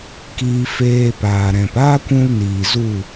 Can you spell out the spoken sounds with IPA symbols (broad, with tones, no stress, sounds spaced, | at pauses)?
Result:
k iː˧ f eː˧ p aː˨ ɾ ɛ̃˨ p aː˦ kʷ ũ˧ l n iː˨ z u˦˨